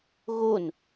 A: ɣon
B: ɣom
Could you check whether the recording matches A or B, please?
A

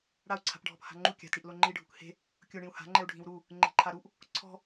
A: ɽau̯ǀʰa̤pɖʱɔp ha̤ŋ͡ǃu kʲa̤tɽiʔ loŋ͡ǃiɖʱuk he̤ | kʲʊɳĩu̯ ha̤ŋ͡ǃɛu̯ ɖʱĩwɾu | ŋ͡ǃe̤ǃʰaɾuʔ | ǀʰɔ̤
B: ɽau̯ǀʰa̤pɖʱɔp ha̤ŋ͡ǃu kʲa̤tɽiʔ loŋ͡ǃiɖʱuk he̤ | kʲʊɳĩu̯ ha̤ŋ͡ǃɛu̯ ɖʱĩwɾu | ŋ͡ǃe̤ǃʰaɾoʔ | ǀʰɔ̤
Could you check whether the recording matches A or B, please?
A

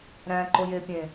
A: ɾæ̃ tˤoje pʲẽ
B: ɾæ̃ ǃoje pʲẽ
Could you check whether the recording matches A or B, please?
B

